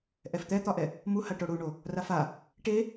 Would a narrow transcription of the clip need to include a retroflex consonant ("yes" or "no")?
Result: yes